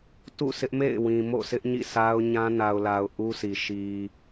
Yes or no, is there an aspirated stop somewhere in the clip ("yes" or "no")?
no